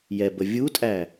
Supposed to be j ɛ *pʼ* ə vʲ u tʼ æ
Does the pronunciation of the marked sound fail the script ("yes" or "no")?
yes